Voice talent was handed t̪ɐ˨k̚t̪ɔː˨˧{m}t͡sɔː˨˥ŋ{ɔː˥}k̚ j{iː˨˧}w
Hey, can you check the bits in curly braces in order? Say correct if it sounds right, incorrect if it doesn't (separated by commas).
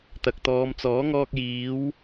correct, incorrect, correct